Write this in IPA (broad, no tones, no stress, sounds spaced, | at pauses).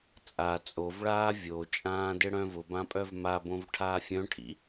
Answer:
t͡sʼ a t͡sʼ o v ɭ aː vʲ o t͡ʃʼ ãː d ɪ ɽ œ̃ v ʊ b ã pʼ œ v m a b õ v ʈʰ aː fʲ œ̃ ʈʰ ḭ